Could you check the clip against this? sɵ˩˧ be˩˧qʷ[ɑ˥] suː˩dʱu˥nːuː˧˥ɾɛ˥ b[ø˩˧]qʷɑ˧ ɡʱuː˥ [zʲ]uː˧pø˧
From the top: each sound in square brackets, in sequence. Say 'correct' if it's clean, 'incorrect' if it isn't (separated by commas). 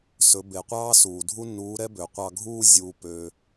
incorrect, correct, correct